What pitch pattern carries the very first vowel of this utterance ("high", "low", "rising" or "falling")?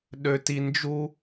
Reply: low